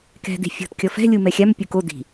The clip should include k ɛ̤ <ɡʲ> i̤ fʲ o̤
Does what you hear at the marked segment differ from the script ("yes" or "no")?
yes